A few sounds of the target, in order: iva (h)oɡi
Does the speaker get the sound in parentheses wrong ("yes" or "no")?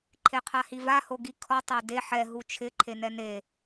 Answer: no